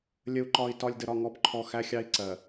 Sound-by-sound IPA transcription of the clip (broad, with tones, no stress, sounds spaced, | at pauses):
lʲ ə˨ u̯ ǃ ɒ˨ i̯ t ɒ˨ lʲ d ə˨ ɾ ɒ˨ ŋ ɔ˨˦ p ǃʰ ɔ˨ x æ˦ xʲ ɑ˦ i̯ ǀ ɜ˨